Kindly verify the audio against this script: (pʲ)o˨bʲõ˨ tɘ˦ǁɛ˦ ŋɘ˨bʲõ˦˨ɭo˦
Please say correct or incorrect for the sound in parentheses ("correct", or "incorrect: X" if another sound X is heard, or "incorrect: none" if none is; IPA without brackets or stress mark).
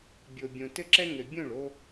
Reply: incorrect: bʲ